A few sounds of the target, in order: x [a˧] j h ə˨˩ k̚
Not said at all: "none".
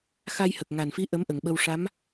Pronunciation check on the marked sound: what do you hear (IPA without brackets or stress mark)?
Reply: a˧